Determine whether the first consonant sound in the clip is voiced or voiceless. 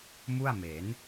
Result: voiced